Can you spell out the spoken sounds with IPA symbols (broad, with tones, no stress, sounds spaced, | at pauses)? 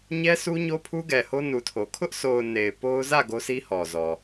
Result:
ɲ ɛ˦ s u˦ ɲ o˦ pʰ u˦ ɡ ɛ˨ h o˦ n u˨ tʰ o˨ kʰ ʊ˦ ʔ s o˨ ʊ̯ n e˨ ɪ̯ p o˦ ʊ̯ z ä˦˨ ɡ o˦ s i˦ h ɔ˨ z ɔ˨